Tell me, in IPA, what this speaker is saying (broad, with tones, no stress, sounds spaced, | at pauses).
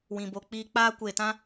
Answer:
w ĩ˨ b o˨ k͡p iː˧ k͡p aː˧ kʷ eː˨ t ã˦